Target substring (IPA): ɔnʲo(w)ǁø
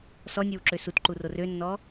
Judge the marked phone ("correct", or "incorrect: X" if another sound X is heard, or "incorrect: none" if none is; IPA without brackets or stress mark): correct